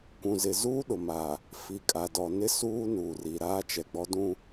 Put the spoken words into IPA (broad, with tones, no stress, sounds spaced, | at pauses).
kʷ ũ˨ z ɪ˨ z uː˦ ɗ ʊ˨ m a˨ | f i˨ kʼ a˨ d ɔ˨ n ɪ˦ s uː˦ n uː˨ r i˨ ɾ aː˦ t͡ʃ ɛ˨ ɡ͡b ɔ˦ d ũ˦